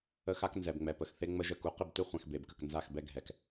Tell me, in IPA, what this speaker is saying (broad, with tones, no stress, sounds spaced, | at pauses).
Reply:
ə˦ x a˦ k n z ɛ˨ b ŋ͡m ɛ˨ p ə˨ x θ e˦ ŋ͡m ə˦ ʒ ə˦˨ k u˦ q ɪ˦˨ b t ɪ˦ χʷ ɛ̃˨ x b e˨ b k ə˨ k n z a˦˨ x b ɛ˦ ɡʱ ɛ˨ k